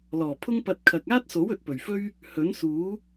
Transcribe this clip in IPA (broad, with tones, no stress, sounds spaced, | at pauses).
l ɔː˨˩ pʰ ʊ˥ ŋ p ɐ˧ t̚ kʰ ɐ˨ k̚ aː˥ t̚ s o˨˥ w ɵ˨ t̚ p ɵ˨˩ ɥ f ɵ˥ ɥ | h ɵ˨˥ n s uː˨˥